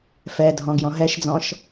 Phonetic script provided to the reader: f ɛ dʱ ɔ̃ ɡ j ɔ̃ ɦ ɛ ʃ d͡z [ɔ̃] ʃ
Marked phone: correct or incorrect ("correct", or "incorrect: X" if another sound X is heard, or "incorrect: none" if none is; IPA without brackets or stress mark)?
correct